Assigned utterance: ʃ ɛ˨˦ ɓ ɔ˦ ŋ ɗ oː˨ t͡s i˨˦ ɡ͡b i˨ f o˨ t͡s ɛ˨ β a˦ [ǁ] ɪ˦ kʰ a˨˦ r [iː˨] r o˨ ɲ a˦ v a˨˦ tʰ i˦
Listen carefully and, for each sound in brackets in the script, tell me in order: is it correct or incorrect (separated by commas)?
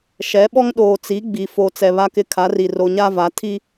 incorrect, incorrect